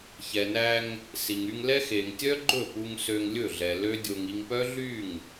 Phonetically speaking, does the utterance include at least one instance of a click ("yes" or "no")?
yes